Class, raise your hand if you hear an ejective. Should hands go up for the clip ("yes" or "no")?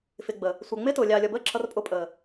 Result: yes